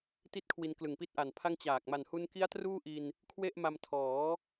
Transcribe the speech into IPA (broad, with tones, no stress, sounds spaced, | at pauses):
t i˥˩ t̚ kʰ w i˧ n k l ɯ˨˩ ŋ p i˥˩ t̚ ʔ a˨˩ n pʰ a˥˩ ŋ t͡ɕ aː˨˩ k̚ m a˨˩ n h u˧ n k i˦˥ a̯ t r uː˥˩ ʔ i˧ n | kʰ w e˥˩ ʔ m a˧ m tʰ ɔː˩˦